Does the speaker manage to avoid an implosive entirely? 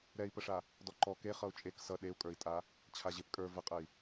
no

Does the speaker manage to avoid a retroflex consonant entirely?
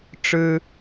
no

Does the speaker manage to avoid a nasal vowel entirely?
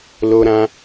no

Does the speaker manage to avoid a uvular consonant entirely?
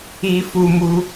yes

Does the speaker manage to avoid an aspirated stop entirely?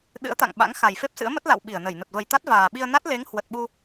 yes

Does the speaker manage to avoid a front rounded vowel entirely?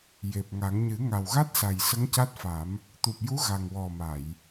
yes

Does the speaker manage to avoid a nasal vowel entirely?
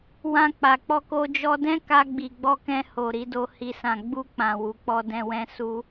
no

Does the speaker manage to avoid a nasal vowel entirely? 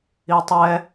yes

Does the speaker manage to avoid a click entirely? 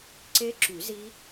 no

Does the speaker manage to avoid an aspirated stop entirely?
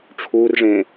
no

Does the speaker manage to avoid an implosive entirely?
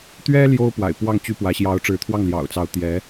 yes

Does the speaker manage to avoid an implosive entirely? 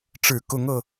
yes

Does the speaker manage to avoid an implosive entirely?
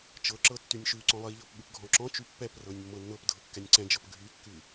no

